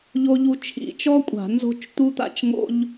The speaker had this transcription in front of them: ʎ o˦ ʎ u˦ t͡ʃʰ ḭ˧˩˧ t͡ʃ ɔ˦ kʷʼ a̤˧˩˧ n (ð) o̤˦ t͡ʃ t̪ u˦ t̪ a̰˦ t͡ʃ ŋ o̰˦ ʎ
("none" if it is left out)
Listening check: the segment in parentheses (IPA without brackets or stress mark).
z